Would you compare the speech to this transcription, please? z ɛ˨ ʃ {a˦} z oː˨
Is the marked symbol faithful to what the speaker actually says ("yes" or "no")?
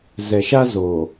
yes